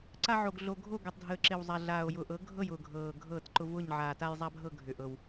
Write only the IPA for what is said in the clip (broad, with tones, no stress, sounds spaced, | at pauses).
ǀ a˦ ʕ o˨˩ ɡ ɮ o˨˩ ɡʱ o˥˩ ɡ o˨˩ tˤ dʱ əː˨˩ ǁ ɪ˨˩ w zˤ a˨˩ ɮ aː˨˩ o̯ j ʊ˨˩ ʔ ɤ˩˥ ɡʱ ɤ˥˩ j ʊː˨˩ ɡʱ ɤː˨˩ ɡʱ ɤː˥˩ t ǃ ʊ˦ v ʊː˥˩ ɲ ʕ aː˨˩ t a˦ j zˤ a˦ bʱ ɤ˥˩ ɡʱ ʏ˨˩ ʔ ɤ˨˩ w